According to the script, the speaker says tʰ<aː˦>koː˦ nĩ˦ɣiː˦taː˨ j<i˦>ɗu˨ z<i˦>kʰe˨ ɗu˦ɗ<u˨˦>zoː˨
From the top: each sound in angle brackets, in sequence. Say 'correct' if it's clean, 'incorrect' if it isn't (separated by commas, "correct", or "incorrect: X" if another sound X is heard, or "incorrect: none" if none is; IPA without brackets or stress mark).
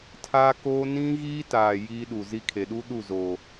correct, correct, correct, incorrect: u˦˨